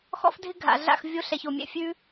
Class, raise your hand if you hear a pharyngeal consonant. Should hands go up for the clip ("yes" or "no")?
no